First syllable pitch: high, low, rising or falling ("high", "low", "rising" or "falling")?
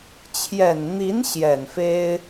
low